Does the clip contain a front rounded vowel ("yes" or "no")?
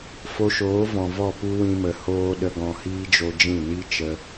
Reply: no